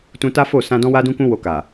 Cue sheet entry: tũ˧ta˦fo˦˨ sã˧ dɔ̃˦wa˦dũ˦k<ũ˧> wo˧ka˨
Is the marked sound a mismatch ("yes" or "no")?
yes